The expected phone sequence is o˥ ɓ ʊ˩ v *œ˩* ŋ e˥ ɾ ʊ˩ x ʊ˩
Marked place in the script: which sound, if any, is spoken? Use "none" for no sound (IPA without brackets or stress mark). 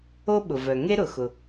œ˩